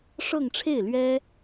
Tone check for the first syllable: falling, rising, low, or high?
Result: falling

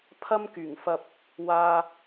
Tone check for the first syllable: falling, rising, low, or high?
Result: high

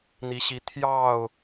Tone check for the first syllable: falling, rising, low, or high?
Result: rising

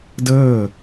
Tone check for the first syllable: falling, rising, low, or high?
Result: falling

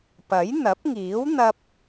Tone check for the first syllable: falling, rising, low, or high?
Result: rising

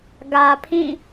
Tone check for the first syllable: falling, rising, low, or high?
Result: low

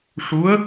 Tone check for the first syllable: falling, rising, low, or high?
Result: rising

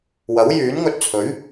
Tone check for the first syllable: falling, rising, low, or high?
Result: rising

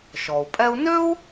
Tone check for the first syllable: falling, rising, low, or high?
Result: low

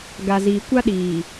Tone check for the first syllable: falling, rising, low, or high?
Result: low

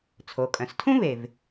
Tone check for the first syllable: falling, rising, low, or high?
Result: low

